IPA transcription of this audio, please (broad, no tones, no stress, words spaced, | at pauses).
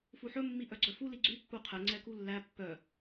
fuħɵ mːiʔœɡ͡ǀœfu liɡ͡ǀy pːuqʰɛ ŋ͡ǀɛkulːæ pːœ